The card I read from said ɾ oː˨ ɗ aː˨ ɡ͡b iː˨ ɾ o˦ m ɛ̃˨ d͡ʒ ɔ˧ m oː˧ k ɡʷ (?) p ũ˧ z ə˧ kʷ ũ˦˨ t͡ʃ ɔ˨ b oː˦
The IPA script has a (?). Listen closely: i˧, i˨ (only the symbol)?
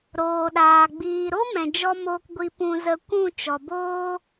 i˧